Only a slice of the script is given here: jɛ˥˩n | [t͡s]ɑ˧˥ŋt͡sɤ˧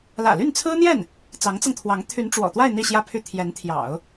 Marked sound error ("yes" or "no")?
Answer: no